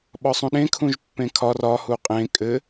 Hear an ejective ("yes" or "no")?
yes